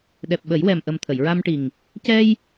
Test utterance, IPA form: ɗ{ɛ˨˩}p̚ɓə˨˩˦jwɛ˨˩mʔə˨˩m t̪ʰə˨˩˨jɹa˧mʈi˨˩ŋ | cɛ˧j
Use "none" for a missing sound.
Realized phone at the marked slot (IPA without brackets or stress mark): ɛ˨˩